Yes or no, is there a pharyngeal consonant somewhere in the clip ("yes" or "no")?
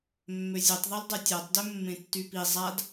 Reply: no